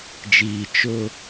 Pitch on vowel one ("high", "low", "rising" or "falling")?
low